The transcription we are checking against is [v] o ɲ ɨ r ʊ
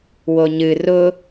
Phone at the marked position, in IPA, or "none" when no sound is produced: w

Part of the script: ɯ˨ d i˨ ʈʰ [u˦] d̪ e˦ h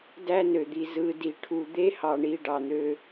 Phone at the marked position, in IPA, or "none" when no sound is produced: u˨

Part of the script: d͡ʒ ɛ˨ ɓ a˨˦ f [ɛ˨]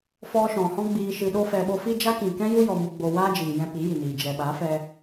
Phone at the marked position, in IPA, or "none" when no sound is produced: ɛ˧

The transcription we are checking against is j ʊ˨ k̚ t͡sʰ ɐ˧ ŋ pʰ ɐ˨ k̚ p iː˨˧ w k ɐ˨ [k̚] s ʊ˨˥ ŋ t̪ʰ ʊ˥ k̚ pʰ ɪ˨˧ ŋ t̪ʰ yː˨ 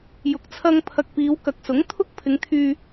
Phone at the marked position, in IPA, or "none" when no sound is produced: k̚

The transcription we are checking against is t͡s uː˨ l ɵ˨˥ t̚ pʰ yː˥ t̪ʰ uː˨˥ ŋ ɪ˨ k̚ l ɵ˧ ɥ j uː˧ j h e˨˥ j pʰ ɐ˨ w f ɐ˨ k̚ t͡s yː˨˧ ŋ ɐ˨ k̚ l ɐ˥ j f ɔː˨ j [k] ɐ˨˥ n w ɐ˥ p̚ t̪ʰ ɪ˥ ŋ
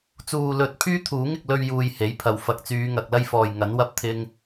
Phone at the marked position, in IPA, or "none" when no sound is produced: ŋ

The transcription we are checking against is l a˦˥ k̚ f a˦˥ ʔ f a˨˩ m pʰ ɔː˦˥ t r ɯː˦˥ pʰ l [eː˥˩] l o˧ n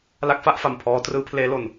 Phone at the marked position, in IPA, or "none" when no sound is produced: eː˦˥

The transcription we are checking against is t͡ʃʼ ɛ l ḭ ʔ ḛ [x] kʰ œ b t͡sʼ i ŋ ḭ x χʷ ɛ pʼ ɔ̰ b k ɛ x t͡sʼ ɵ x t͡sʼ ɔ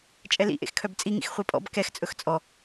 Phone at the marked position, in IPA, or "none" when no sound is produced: x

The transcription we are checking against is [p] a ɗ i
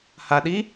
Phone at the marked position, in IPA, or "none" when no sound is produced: h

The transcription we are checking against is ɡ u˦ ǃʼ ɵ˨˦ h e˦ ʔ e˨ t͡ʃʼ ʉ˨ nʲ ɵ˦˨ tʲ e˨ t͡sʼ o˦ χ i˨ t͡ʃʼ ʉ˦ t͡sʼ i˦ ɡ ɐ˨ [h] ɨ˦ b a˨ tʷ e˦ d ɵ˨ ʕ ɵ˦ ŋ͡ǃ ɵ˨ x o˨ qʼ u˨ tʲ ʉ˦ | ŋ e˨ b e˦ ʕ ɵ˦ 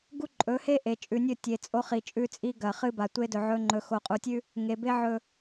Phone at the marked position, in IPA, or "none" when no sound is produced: χ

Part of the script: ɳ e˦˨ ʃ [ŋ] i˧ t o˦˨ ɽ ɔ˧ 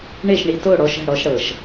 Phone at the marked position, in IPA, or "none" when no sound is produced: ɳ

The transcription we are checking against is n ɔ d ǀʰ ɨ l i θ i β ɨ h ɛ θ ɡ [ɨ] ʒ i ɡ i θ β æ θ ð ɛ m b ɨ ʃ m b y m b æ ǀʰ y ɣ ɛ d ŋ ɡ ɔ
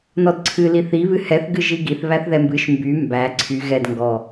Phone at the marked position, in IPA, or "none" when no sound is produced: ɨ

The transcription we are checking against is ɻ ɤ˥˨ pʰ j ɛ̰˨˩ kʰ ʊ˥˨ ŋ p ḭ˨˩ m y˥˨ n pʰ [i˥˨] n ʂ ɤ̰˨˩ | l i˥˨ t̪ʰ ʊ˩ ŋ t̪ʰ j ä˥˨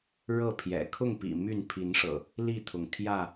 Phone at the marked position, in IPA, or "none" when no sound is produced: i˨˦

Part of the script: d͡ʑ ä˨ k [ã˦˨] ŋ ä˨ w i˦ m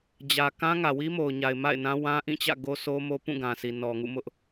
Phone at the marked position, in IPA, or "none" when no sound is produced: ã˦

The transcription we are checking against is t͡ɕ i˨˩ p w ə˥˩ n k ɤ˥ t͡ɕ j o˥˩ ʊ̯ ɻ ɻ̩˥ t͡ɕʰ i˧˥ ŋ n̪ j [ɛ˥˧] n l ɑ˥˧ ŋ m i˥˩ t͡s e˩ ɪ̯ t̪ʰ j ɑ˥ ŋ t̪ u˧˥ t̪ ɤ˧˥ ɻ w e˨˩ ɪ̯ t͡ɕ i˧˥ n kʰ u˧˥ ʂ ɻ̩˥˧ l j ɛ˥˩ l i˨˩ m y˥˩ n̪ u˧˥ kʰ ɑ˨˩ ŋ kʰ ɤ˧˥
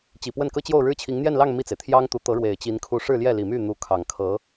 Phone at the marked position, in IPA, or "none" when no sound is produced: ɛ˥˧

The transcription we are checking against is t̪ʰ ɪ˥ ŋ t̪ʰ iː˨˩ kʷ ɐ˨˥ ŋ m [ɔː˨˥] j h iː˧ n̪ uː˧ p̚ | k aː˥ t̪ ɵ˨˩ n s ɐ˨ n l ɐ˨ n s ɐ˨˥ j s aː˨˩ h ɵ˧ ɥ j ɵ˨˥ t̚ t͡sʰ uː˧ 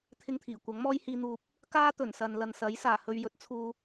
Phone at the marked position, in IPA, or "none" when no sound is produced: ɔː˥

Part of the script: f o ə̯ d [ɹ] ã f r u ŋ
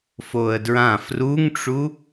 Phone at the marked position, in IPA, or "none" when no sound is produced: ɹ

